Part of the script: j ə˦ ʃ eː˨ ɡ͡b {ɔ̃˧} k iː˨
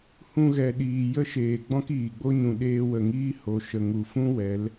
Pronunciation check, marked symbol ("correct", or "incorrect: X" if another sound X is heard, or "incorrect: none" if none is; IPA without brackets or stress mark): incorrect: ɔ̃˦